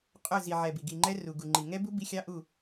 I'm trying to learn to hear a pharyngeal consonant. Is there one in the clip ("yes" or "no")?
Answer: yes